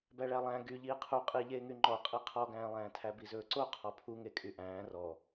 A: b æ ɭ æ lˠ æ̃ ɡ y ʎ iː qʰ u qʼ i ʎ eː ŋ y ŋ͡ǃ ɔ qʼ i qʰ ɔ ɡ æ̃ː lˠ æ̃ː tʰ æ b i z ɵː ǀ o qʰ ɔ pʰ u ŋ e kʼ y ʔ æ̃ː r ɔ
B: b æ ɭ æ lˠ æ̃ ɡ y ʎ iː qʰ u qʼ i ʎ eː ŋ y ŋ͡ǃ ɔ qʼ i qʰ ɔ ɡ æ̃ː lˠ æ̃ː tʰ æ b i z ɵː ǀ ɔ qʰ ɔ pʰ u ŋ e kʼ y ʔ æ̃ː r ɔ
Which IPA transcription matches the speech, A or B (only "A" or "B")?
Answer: A